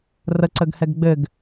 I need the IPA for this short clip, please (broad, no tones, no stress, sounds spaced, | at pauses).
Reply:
r ə ǀ ə ɡ h ɛ ɡ ɡ͡b ɘ ɡ